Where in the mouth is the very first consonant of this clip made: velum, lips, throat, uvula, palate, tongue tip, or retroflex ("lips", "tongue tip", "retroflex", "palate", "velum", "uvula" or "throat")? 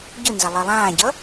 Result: palate